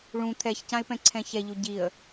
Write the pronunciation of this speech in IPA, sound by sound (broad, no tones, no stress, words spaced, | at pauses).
ɭũ t̪ʰɛçcãɪ̯pɛ̃ǀʰɛ̃ çɛʎu ɟiə̯